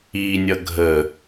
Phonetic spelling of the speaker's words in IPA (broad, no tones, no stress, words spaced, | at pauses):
inʲʌ ɡʱə